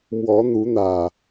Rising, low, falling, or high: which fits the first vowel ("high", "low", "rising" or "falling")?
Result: rising